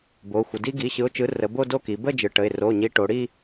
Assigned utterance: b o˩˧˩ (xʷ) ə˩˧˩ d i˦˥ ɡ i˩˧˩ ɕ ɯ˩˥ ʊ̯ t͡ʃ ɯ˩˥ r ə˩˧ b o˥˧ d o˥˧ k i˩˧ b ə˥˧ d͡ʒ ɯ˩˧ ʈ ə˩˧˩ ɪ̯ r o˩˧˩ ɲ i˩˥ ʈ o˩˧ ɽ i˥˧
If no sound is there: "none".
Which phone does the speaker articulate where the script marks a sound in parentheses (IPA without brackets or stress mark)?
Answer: xʷ